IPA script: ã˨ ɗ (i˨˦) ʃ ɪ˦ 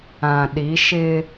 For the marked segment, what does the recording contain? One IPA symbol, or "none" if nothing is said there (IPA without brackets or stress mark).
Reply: i˨˦